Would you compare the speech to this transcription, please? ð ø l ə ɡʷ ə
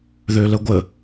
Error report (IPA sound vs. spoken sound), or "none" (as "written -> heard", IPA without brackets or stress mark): none